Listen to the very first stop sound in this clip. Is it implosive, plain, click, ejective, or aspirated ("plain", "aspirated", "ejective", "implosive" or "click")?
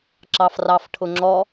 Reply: click